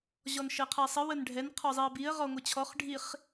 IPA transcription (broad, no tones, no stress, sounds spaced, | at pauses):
ʑ ɔ n ʃ ɘ qʰ ɛ sˤ ə w ə n ɖʱ ɛ n qʰ ɔ zˤ i ə̯ b i ə̯ ʁ ɔ ŋʷ ɘ t͡ɕʰ ɔ χ ɖʱ i χ